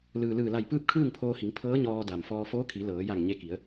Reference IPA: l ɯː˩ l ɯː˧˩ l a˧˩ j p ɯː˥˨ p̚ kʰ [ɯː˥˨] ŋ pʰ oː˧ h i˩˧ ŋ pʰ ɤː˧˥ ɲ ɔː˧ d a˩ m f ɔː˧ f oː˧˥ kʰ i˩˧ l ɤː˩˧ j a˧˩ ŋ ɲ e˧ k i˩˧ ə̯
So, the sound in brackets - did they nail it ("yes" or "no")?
yes